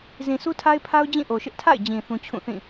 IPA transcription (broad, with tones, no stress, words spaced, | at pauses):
zĩ˨su˦tʰa˦ɪ̯pʰa˦ʊ̯ d͡ʑĩ˦˨ʔo˨ʃɪ˦ʔ tʰa̰˦˨ɪ̯d͡ʑĩ˨ θũ˦t͡ɕʰũ˦˨θĩ˦˨